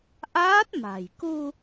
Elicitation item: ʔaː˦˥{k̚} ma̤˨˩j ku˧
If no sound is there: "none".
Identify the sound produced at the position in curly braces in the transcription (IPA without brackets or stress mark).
t̚